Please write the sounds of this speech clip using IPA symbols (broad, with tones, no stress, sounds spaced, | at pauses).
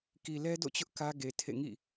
k i˨ l ɛ˦ d o̰˦˨ t͡ɕ ʊ˦ ʔ k ä˦ ɡ e˨ tʰ ḛ˦˨ ŋ ḭ˦˨